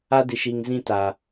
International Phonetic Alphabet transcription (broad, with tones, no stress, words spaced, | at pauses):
a˦di˨ʃiː˨ŋ zĩ˦ta˨